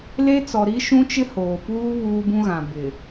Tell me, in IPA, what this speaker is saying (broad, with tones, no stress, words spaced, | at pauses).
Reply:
le˦t͡sɔ˨ ɾi˦ ʃũ˦t͡ʃɪ˦hoː˨puː˦ βuː˦bũ˦ɣã˨ bɪ˨